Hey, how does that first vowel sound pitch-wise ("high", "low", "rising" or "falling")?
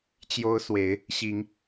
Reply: high